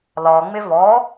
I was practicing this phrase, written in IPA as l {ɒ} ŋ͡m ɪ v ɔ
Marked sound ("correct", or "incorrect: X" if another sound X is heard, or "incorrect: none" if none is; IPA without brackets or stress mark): correct